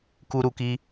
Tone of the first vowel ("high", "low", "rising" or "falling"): high